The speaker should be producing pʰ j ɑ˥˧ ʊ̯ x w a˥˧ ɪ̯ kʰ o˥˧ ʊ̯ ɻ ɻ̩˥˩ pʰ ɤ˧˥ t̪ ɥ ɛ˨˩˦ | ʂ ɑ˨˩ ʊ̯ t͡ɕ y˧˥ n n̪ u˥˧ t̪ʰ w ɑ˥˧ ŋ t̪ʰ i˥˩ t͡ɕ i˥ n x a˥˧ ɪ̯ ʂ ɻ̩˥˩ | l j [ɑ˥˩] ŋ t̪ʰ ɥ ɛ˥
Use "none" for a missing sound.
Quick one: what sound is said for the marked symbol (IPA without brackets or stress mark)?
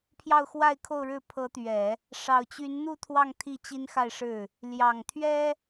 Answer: ɑ˨˩